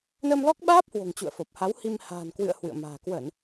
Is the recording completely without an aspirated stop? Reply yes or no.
yes